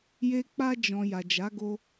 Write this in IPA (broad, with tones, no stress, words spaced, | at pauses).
je˦ k͡pa˧d͡ʒɔ̃˨ ja˨d͡ʒa˨˦ɡo˧